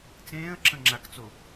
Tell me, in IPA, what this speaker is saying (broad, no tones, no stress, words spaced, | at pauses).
t͡sẽːə̯ǁə̃ŋ͡ǁakt͡so